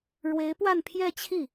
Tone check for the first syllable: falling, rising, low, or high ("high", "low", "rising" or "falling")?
rising